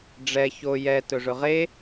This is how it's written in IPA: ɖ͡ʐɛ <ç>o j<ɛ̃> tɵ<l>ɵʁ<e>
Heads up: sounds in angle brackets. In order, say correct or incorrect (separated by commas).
correct, incorrect, incorrect, correct